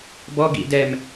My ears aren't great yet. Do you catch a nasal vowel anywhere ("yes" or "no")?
no